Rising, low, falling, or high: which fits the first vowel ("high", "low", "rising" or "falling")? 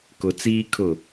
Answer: low